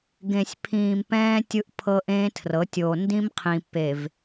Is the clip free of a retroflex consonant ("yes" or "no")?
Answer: yes